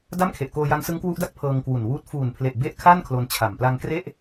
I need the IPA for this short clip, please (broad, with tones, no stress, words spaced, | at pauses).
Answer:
da˥˩mkʰe˨˩ʔkoː˧ja˦˥ŋ sɯ˦˥ŋkwu˦˥ʔda˥˩k̚ pʰɤː˧ŋkwu˨˩nwuː˦˥t̚ fuː˨˩npʰle˨˩ʔ be˥˩ʔ kʰa˥˩n kʰlo˧nt͡ɕʰa˨˩m pla˧ŋkre˥˩ʔ